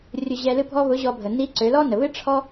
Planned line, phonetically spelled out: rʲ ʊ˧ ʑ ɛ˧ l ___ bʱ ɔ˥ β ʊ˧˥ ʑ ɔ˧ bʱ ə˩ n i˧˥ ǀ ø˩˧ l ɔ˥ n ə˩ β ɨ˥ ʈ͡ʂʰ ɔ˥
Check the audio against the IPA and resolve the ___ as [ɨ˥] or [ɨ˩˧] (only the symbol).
ɨ˥